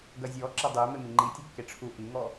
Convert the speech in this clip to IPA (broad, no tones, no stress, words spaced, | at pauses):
ɡɐzʲɔ ǁɐdˤe memiŋ͡ǃi tʲukːeʈ͡ʂʰu ʔiŋɔ